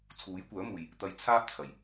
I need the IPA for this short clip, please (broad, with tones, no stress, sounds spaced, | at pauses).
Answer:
t͡sʰ uː˨˥ j kʷ œː˨˥ m uː˨ j | t̪ ɐ˧ j t͡sʰ aː˥ p̚ t͡sʰ ɐ˨˩ j